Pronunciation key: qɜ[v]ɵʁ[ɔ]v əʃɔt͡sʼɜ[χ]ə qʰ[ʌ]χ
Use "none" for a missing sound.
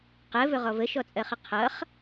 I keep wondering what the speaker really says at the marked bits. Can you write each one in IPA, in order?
v, ɔ, χ, ʌ

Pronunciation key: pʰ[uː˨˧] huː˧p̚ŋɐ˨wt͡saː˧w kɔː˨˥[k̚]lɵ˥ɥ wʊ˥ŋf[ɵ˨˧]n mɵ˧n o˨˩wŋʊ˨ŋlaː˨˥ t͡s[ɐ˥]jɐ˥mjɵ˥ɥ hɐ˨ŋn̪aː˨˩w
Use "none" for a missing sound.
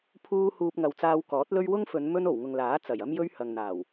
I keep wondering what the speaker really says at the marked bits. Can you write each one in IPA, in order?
uː˧, t̚, ɵ˨˧, ɐ˨˩

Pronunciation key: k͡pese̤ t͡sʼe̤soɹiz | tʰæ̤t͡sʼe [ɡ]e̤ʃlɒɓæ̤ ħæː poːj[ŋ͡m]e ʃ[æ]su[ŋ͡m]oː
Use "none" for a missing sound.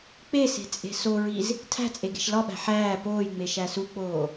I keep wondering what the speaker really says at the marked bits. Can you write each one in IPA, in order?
ɡ, ŋ͡m, æ, k͡p

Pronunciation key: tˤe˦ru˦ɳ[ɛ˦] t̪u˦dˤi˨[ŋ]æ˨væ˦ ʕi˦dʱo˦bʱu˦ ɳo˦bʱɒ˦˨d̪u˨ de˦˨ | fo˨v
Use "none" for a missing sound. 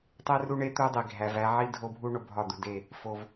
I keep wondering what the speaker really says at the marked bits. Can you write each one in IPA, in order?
e˦, ɡʱ

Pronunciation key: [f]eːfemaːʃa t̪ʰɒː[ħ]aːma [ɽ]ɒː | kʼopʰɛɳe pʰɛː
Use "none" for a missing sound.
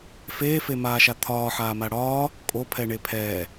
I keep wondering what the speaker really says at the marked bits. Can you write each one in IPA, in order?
f, ħ, ɽ

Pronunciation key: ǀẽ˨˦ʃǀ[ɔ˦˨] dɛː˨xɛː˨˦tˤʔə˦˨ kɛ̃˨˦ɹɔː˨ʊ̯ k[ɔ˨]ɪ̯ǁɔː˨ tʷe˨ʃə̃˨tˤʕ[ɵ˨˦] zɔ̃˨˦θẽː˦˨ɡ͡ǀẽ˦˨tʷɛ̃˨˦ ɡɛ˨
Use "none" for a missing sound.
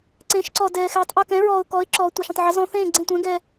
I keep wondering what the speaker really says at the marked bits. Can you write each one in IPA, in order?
ɔ˨, ɔ˨˦, ə˨˦

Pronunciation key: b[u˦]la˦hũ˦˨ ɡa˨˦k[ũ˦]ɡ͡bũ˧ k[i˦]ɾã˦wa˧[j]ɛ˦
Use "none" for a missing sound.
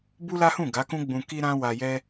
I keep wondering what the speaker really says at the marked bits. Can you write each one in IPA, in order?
u˦, ũ˦, i˦, j

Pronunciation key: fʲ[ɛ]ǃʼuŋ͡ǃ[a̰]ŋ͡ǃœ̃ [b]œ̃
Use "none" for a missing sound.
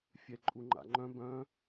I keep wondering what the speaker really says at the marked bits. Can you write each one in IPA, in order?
ɛ, a̰, b

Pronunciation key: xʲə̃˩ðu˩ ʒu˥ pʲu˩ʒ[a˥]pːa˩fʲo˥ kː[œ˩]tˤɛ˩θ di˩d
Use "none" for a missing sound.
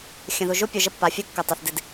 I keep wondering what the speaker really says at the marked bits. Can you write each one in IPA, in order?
ə˥, ə˩

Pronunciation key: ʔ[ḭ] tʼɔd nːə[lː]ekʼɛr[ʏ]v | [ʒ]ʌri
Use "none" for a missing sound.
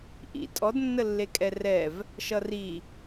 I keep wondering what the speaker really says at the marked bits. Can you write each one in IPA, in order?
ḭ, lː, ɛ, ʃ

